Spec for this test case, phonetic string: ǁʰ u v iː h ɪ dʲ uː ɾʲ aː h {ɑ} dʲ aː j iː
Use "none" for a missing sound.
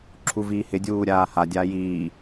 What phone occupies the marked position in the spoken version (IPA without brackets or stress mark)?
a